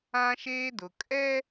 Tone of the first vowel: high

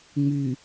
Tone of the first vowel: low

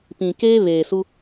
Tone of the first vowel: low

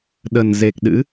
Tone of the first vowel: low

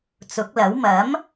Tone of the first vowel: rising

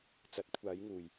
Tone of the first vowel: rising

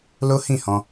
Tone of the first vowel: high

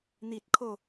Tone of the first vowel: high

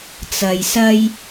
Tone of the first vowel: low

